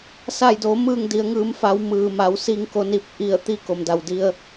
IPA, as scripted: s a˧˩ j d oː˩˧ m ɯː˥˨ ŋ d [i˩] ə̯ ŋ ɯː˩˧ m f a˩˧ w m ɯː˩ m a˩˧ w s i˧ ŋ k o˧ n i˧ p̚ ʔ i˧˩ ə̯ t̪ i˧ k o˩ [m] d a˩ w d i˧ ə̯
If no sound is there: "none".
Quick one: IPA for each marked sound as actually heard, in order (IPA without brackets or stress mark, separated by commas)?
i˩˧, m